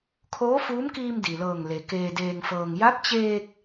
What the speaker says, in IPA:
kʰoː˧˥fuː˧˥mkiː˧m di˩lɤː˧˩ŋle˩ keː˧deː˧ŋfɤː˧ŋ ja˧˥p̚t͡ɕeː˧k̚

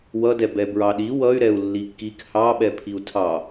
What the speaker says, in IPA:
wʌdɛ bɛbɹɑɗi wʌy̯ɾɛu̯ lːikːik hɑɓɛ pʰiu̯tʰɑ

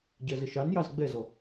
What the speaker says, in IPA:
ɟɜzəʃɑnjɑz ɡ͡bɛzɔ

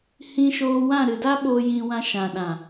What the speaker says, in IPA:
hĩ˧ʃoː˧wã˦˨ ɾɨ˨da˦ɓoː˧ jĩ˧wã˧ ʃã˨ɗã˨

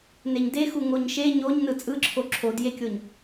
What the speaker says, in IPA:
neɲdexu ŋoɲʃe ɲoɲ nɯt͡sʼɯǁʰo ǁʰodjekʲoɲ

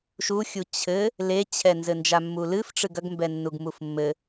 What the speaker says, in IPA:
ʃuxʲu t͡ɕʰɘ | let͡ɕʰɛ nzɘnd͡ʒamːulɨf ʈ͡ʂɨɡɐɡmbɛ nːuɡmufmːɘ

